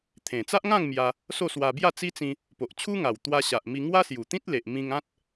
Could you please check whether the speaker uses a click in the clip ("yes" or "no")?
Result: no